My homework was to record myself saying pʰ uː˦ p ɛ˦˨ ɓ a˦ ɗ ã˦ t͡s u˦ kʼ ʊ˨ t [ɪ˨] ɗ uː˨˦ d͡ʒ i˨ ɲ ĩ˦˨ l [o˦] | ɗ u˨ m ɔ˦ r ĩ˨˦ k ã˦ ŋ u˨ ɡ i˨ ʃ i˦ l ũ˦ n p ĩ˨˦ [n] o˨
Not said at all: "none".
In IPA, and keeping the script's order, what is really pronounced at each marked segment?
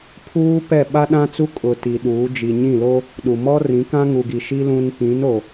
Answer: i˨, o˦, n

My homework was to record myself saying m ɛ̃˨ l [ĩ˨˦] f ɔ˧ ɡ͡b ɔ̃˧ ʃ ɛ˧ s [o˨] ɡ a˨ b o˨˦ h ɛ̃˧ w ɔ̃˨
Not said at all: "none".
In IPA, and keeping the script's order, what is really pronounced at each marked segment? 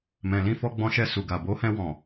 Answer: ĩ˧, u˨

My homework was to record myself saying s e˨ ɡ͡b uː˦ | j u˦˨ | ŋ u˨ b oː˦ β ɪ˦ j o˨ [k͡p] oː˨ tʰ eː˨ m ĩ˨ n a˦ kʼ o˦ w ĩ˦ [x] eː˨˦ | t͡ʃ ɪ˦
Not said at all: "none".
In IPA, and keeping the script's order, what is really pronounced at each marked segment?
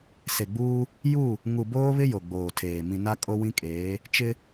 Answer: ɡ͡b, kʼ

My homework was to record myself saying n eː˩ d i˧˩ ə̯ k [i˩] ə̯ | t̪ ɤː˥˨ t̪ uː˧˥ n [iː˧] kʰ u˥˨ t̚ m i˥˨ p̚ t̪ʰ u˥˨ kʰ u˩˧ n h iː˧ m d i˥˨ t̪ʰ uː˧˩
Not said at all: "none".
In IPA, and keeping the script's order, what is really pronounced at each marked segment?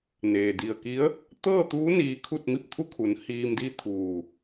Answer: i˧˥, iː˧

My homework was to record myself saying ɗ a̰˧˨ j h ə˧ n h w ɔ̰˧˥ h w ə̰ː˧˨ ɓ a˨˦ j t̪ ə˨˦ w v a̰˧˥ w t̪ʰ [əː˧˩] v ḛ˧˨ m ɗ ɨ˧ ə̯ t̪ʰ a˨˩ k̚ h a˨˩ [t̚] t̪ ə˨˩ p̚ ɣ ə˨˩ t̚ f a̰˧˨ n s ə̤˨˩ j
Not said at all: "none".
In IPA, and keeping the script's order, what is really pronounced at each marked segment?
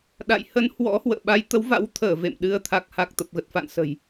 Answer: əː˧˩, k̚

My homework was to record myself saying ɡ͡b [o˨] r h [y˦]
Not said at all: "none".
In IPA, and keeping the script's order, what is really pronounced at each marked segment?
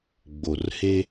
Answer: o˨, e˦

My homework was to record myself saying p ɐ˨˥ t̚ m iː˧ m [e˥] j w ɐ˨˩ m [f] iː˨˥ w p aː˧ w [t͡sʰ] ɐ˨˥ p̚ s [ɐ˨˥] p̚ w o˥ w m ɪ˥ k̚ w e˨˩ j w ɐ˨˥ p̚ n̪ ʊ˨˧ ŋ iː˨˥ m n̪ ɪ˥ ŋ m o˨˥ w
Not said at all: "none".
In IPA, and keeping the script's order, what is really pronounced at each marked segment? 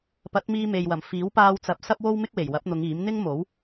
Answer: e˨, f, t͡s, ɐ˥

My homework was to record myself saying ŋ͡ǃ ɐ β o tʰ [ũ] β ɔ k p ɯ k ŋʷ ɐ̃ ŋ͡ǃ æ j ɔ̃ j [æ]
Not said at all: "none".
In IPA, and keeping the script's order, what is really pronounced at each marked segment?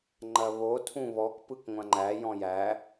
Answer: ũ, æ

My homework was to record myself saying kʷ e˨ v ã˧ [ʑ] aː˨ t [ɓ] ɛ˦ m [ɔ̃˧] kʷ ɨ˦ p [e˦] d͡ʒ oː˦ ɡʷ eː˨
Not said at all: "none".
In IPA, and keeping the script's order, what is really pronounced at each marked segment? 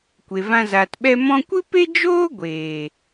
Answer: z, ɓ, ɔ̃˧, e˦

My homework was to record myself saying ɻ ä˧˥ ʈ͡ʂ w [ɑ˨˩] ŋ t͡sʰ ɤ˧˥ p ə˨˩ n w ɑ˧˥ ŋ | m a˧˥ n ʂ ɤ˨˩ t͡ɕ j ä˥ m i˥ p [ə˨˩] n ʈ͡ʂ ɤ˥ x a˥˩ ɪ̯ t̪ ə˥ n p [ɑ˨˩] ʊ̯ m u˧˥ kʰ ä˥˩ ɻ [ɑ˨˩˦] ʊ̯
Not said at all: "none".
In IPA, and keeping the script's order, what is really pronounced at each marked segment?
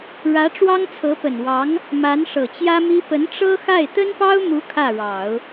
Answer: ɑ˥, ə˧˥, ɑ˥, ɑ˨˩˦

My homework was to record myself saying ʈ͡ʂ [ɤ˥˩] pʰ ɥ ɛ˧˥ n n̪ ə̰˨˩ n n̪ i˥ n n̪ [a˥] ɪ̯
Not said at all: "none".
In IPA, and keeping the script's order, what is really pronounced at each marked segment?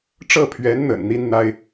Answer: ɤ˥˩, a˥

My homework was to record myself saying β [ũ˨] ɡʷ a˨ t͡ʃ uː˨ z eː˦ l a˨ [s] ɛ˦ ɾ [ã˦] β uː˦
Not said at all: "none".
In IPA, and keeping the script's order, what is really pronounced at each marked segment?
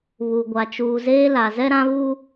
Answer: u˨, z, ã˦

